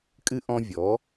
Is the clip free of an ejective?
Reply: no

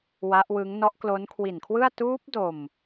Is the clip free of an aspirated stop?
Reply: no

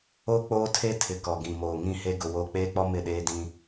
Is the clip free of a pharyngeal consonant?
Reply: yes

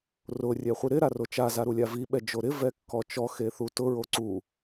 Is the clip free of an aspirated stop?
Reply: yes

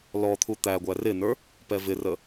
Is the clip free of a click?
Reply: yes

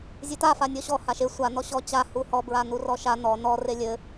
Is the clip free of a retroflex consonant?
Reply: yes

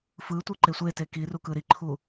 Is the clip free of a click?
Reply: no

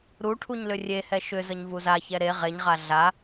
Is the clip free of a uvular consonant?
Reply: no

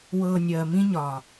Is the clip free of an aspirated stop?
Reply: yes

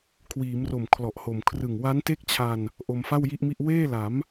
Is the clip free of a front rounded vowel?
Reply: yes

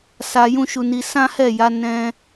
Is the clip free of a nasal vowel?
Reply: no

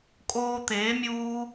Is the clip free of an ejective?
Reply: no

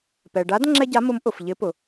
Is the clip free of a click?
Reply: no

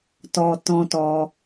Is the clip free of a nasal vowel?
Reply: no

